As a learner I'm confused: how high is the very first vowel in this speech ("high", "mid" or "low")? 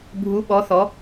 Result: high